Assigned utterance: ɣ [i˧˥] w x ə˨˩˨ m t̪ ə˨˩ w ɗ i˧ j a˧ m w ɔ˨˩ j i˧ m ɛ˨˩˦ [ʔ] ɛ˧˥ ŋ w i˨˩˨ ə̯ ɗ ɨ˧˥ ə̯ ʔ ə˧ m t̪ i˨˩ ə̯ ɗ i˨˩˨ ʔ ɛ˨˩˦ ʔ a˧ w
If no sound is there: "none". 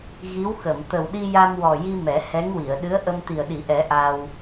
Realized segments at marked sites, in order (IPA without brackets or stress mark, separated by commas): i˧˥, h